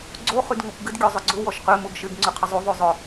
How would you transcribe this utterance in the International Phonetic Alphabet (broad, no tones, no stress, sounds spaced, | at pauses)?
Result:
ɡ͡ǀ o χ y d ŋ o kʷ ɡ ɪ d ɡʲ o zˤ ʊ ɡ͡ǀ ʊ w ɔ ʃ q ø m u ɡ ʃ ɪ ɡ ŋ͡ǀ y qʰ ɪ zˤ u ðˤ y zˤ ʊ